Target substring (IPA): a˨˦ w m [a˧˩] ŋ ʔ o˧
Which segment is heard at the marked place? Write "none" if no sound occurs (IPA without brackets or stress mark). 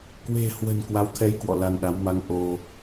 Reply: a˨˦